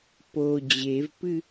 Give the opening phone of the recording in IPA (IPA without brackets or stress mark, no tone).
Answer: p